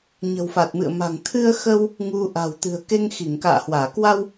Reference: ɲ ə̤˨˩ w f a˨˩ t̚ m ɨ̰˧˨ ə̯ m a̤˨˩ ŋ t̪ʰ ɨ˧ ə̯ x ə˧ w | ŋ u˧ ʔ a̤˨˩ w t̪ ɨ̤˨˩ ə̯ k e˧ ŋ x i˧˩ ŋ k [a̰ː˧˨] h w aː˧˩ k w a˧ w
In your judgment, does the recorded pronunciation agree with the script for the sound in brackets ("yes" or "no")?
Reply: yes